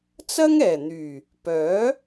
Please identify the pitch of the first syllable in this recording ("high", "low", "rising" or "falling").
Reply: high